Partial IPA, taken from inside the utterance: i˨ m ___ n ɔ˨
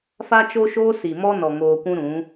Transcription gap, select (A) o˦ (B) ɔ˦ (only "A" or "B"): B